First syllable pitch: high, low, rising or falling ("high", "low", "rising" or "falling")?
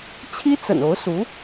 high